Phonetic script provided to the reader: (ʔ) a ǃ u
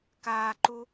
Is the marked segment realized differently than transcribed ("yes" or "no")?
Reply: yes